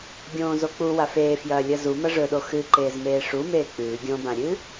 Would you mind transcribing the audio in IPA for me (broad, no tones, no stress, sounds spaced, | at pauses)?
ɡʲ õː z o k͡p u w a f eː f j ɐː lʲ ɐ z u m ɐ ʐ ɵ ɗ o x ɨ ǃ eː z m eː ʂ u m eː k͡p ʉː ɡʲ õ b ã ɾʲ ɨː